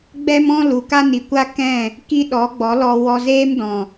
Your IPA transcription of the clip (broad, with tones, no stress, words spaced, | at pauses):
ɡ͡bɛ˦mɔ̃˦ lu˨ka˦ni˨kʷa˦ kɛ̃˦˨ | ki˦ɗɔ˨˦ ɡ͡bɔ˨˦lɔ˧wɔ˧ zeː˦mdɔ̃˨